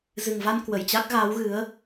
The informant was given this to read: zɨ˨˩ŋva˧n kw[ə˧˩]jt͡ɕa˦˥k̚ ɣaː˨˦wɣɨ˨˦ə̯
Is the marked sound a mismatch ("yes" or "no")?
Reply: no